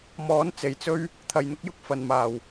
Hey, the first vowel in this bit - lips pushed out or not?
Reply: yes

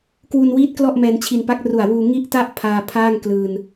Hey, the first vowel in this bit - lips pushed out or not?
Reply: yes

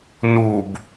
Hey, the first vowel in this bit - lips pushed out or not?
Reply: yes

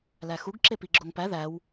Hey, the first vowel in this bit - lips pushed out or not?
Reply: no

